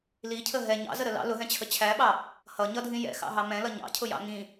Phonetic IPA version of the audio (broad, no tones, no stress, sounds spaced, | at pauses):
l i cʰ ə ɦ ɛ ɲ ɑ̰ z ə ɾ ə l ɑ̰ l ʊ ɦ ɛ̃ t͡ɕʰ ə t͡ɕʰ æ ɓ ɑ | h ʌ ɲ ʌ dʱ ĩ j ɛ̰ x ɑ̰ ɦ ɑ m ɛ̃ l ʌ ɲ ɑ̰ cʰ ʊ j ɑ̰ ŋ ĩ